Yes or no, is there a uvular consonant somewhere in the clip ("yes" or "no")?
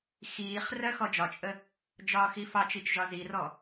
yes